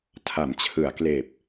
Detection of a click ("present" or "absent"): absent